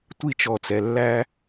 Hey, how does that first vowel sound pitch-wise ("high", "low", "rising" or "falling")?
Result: high